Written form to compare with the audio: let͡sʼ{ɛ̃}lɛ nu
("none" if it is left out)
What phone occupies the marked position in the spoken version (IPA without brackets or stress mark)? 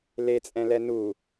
ɛ̃